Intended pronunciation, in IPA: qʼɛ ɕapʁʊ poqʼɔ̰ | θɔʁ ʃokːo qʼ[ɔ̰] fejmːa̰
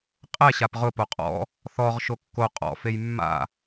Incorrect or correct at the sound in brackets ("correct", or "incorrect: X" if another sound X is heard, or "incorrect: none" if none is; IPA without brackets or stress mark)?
correct